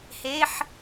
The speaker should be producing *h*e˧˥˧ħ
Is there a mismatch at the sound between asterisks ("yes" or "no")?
no